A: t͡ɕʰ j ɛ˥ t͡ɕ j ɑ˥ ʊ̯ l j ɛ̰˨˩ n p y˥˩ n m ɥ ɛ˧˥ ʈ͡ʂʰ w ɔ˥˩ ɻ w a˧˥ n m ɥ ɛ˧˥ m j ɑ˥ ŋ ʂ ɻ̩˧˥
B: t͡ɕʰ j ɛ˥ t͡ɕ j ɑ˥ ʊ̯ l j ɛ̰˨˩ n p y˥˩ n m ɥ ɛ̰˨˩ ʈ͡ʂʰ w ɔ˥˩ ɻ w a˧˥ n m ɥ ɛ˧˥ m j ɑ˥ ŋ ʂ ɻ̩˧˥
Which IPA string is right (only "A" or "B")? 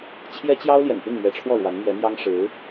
A